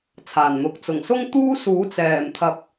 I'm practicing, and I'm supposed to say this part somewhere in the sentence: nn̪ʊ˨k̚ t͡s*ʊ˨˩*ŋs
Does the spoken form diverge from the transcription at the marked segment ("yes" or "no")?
no